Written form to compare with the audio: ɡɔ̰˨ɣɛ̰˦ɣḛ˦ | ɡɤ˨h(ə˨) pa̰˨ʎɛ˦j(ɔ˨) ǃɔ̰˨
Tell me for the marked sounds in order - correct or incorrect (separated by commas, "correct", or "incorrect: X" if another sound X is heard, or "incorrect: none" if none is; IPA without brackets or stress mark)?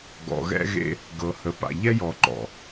correct, correct